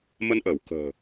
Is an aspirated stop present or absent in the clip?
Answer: absent